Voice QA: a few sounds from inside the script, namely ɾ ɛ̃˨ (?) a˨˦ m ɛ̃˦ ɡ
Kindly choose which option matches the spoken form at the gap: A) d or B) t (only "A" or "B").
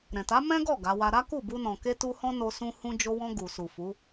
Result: B